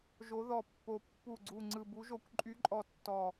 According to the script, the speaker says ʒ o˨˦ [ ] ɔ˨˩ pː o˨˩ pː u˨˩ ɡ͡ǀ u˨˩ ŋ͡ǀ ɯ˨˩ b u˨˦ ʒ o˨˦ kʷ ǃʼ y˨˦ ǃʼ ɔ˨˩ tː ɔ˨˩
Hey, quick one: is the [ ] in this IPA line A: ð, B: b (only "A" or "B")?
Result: A